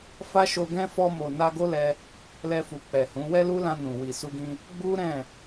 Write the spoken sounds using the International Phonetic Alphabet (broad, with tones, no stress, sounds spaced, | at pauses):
f a˦ ʃ o˧ ɡ ɛ̃˦ f ɔ˧ m o˨ n a˧ ɡ o˦ l ɛ˧ | l ɛ˧ f u˨ k͡p ɛ˨ h ũ˨˦ w ɛ˦ l u˦ l ã˧ n ũ˨ w i˨ s u˧ ɡ ĩ˧ | ɡ͡b u˦ ɾ ɛ̃˦˨